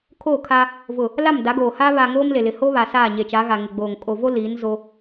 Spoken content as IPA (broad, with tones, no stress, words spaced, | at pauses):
kʰo˦˨kʰa˦ | vʊ˨ | la˦˨mda˨˦ɡoː˨haː˦ βa˨ ŋoː˦mle˨lɪ˨ ho˦ βa˨saː˦˨ɲe˨t͡ʃa˨˦ ɣa˨ŋɪ˨ɡ͡boː˨ŋ kʼo˨vo˦ liː˨˦nzo˦